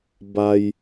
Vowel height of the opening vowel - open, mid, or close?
open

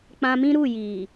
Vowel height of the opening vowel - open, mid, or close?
open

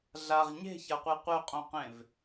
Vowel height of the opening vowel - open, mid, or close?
open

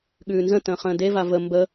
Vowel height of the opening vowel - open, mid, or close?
close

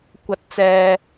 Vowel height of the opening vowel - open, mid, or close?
open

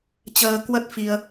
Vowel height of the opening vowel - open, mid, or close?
mid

